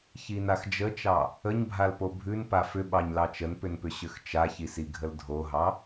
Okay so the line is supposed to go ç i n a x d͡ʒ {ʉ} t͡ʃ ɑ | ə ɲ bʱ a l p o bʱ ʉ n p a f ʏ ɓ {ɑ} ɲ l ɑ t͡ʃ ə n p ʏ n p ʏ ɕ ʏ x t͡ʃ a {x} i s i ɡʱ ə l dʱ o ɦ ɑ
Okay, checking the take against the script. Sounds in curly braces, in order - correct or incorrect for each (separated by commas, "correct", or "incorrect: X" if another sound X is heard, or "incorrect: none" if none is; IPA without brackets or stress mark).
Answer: incorrect: ə, correct, incorrect: ç